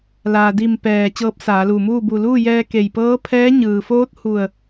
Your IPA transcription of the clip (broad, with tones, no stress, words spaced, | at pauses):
laː˩di˧˩m pɛː˧˩ t͡ɕɤː˧˥p̚saː˩˧luː˧˩muː˥˨ bu˧˩luː˥˨jɛː˧ ke˧˩jpɤː˧˥pʰɛː˧˥ ɲɯː˩foː˧˥t̚hu˧˩ə̯